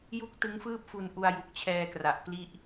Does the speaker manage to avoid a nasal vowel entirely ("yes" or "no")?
yes